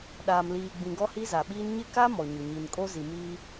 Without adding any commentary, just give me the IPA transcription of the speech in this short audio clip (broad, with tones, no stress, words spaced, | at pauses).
ɗaː˨mliː˨ɡ͡bĩ˨ ɡɔ˦hi˦za˨ɓiː˦n ɲɪ˦ka˦ mɔ˨ɲʊ˨ɲi˨n kʼo˦ zi˨miː˦